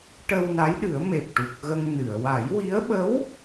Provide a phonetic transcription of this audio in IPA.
ʈ ə˧ w n a˧˥ j ɗ ɨ˨˩˦ ə̯ m e˨˩ p̚ ʈ u˨˩ k̚ ɣ ə˧ ŋ n ɨ˨˩˨ ə̯ w a˨˩˦ j w i˧˥ ə̯ ɓ ə˧˥ w

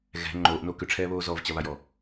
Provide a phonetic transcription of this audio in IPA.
ɣ ɛ̤ ŋ͡ǃ oː ʔ n o k ʏ ʈ͡ʂʰ ɛː β oː z ɔ v t͡ɕ ɐ β a j ɔ

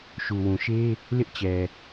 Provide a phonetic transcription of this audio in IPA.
ʃ u˨ w ũ˨ ʃ e˦ | l ɪ˦ ʔ t͡ɕ ɛ˨

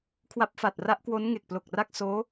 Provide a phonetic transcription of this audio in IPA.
kʰ w a˦˥ p̚ f a˨˩ t̚ r a˦˥ ʔ k w o˦˥ n ŋ e˨˩ k̚ p l o˨˩ k̚ r a˥˩ k̚ s oː˦˥

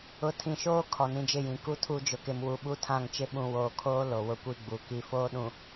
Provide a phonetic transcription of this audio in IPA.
ʊ˨ tʰ ĩ˨ ʃ oː˦ kʰ ɔ˨ n ĩ˦ d͡ʒ ɪ˦˨ j ĩ˨ k u˦ tʰ u˦˨ d͡ʒ ʊ˨ k ɪ˨ m w u˨ ɓ u˦ tʰ ã˦˨ ŋ t͡ʃ ɪ˦ ɓ ũ˨ w oː˨ kʰ oː˦ l o˨ w ʊ˦ kʷ i˦ ɡ͡b u˨ k i˦ f oː˦ ɗ ũ˨

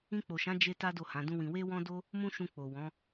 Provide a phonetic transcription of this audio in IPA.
ĩ˧ k͡p o˨ ʃ ã˨˦ d͡ʒ e˧ t a˦ d o˦˨ h ã˨˦ d ũ˦ w ĩ˧ w e˦ w ɔ̃˦ d o˦ | m ũ˦ ʃ ũ˧ k͡p o˨ w ɔ̃˨˦

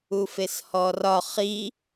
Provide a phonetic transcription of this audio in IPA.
u f e s h ɔ r ɒ χ i

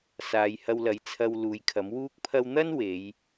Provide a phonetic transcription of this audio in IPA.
s aː˨˧ j h ɐ˧ w l ɐ˨˥ j t͡sʰ ɐ˧ w l uː˨˧ j kʰ ɐ˨˥ m w uː˥ k̚ pʰ ɐ˥ w n̪ ɐ˥ n w e˨˧ j

